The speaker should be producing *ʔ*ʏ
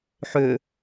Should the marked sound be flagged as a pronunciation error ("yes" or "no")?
yes